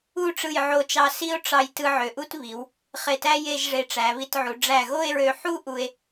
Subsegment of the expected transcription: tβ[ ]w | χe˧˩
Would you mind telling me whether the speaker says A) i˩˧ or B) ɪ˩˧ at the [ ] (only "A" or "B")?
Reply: A